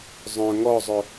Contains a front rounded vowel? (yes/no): yes